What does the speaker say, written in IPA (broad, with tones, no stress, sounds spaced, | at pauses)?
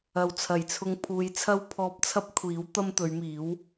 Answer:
ɐ˨ w t͡sʰ ɐ˨˩ j t͡sʰ ʊ˧ ŋ pʰ uː˨˧ j t͡sʰ ɐ˥ w pʰ ɔː˧ p̚ t͡sʰ ɐ˥ p̚ kʷʰ iː˨˥ w t̪ ɐ˥ m t̪ ɵ˨˧ ɥ m iː˨˥ w